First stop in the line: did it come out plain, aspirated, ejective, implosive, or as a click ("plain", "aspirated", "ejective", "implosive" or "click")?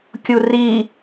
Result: plain